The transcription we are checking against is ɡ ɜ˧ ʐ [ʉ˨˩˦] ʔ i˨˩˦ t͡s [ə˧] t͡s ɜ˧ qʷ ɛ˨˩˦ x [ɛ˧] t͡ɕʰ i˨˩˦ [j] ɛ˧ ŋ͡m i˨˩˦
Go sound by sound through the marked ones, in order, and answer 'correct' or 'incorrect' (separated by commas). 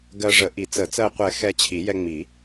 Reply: incorrect, incorrect, correct, correct